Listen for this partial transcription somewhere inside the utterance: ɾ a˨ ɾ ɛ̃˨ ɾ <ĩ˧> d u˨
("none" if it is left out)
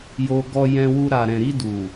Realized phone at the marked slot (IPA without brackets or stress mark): i˧